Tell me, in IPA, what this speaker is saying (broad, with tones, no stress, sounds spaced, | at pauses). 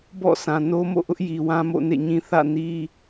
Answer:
b ɔ̰˦˨ s ã˨ n o˦ m o̰˦˨ ʔ ʊ˦ ʔ j i˨ w ã˦ m o̰˦˨ n ḛ˦˨ ɲ ĩ˦ θ ä̰˦˨ n i˦